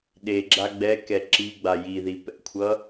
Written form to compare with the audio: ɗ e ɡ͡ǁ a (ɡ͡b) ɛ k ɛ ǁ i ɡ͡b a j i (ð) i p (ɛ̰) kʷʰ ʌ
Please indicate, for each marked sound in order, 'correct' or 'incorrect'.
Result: correct, correct, correct

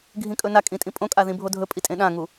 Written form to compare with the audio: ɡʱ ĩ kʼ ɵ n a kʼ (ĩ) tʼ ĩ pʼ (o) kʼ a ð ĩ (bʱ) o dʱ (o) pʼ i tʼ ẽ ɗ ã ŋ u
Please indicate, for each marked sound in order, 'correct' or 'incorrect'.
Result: correct, incorrect: õ, correct, incorrect: ɵ

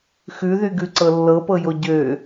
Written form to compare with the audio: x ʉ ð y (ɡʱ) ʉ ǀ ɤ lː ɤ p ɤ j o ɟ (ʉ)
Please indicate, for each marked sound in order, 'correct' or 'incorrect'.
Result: incorrect: ɡ, incorrect: ø

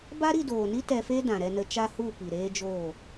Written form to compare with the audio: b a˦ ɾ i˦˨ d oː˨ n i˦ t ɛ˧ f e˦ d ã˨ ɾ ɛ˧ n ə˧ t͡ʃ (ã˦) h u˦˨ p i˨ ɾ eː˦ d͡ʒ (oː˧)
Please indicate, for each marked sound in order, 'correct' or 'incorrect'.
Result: incorrect: a˦, incorrect: oː˦˨

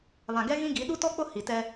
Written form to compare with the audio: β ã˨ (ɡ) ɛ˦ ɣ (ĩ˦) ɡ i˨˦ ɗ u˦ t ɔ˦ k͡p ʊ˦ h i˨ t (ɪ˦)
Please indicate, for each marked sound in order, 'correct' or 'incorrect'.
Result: correct, correct, incorrect: ɛ˦

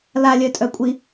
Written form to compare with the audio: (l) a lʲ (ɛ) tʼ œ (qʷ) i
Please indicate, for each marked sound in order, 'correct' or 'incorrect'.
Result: correct, incorrect: œ, incorrect: kʷʼ

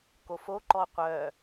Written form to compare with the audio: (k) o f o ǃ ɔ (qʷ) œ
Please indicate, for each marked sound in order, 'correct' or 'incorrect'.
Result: correct, correct

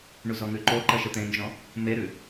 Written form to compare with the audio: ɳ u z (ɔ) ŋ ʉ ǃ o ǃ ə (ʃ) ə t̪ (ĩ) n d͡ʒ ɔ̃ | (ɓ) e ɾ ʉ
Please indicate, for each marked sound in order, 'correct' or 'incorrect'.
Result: correct, correct, incorrect: ẽ, incorrect: m

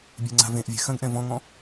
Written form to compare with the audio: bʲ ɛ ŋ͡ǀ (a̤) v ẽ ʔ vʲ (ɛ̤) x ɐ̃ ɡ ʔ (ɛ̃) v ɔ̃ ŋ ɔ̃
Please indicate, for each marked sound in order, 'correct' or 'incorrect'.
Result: correct, correct, correct

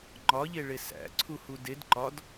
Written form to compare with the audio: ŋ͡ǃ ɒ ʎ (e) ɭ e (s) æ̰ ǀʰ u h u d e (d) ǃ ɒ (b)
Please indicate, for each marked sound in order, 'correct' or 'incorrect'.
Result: correct, correct, correct, incorrect: d

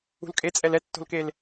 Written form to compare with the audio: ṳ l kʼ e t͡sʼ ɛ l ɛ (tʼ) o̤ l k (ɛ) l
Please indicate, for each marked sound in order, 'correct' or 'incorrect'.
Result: incorrect: tː, incorrect: e

